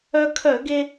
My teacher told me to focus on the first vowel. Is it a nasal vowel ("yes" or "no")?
no